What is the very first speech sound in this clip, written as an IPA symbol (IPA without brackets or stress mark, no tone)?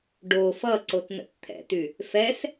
ɖ